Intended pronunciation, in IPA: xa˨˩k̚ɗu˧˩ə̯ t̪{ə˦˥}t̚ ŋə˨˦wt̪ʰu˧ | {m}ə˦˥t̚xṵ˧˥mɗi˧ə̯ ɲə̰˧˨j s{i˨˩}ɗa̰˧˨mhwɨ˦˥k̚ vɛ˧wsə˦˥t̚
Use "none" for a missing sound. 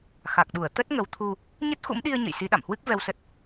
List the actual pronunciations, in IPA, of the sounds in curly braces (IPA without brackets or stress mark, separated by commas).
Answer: ə˦˥, ɲ, i˨˦